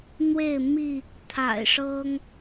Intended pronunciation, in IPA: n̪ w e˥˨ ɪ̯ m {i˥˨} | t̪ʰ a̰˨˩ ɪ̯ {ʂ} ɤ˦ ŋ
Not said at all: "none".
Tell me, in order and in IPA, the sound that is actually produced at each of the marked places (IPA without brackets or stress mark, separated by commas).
i˥˨, ʂ